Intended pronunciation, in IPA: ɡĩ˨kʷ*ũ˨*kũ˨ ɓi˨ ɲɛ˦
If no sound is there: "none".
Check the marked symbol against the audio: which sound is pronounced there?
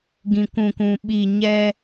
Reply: ũ˨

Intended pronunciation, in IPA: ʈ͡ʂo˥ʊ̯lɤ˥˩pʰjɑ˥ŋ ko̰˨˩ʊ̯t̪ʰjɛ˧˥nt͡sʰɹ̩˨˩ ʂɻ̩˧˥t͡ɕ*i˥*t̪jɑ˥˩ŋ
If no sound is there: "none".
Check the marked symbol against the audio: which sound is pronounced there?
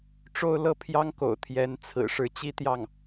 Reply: i˥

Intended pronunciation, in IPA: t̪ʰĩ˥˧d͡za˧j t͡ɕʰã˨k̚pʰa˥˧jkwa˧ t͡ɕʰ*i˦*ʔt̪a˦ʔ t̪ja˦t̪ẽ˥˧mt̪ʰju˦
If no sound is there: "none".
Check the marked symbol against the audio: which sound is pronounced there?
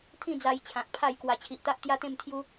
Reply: i˨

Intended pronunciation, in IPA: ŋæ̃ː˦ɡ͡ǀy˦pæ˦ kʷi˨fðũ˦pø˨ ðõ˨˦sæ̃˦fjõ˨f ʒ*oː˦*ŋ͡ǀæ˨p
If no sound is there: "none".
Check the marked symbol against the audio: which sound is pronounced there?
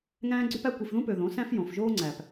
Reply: oː˦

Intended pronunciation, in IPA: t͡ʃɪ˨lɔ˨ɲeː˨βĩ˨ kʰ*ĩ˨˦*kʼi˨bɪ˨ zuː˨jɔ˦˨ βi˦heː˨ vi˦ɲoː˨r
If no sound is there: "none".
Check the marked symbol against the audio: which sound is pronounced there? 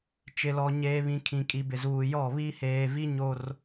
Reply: ĩ˨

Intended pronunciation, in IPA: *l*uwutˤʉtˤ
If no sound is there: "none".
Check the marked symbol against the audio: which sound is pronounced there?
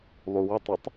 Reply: lˠ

